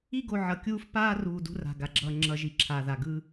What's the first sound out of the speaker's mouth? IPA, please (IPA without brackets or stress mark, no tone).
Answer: i